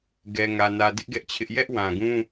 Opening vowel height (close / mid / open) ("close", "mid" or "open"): mid